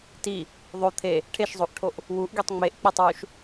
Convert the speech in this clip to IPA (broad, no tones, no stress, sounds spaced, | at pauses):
t i | ðˤ o t̪ʰ e | ʈʰ e ʃ zˤ o ʔ ʈʰ o ʔ | w u ʔ ɡ i tˤ ŋ͡m e ʔ k͡p e tˤ w u ʃ